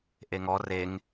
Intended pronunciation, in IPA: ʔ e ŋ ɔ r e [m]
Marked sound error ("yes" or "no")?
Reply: yes